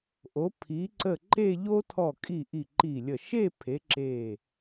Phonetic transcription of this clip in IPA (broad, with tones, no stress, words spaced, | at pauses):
ʔo˩˧pʰi˩˧ ǀə˧˩ ǃe˥˧ʎo˥ tʰɔ˧˩kʼi˧˩ ʔi˧˩ǃi˧˩lʲə˧˩ ʃe˥˧pʰe˩˧ ǁe˧˩